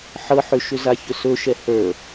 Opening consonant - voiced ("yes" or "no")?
no